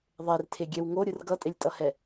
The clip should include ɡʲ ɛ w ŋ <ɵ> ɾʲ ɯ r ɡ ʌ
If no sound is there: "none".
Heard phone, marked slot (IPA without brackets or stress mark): o